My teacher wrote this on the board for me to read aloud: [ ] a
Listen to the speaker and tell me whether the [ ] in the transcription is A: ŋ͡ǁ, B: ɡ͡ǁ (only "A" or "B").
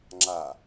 A